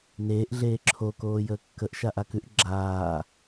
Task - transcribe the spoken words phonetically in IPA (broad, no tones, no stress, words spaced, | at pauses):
neːʔɮeː ǁʰo koːjəːkːəʔ ʃaʔakʉʔ ɡ͡ǁaː